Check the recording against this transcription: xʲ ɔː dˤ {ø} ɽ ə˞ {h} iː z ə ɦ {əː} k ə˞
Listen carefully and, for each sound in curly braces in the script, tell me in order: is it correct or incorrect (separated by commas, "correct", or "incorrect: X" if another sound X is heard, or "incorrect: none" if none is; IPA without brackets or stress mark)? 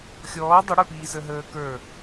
incorrect: ə, incorrect: p, correct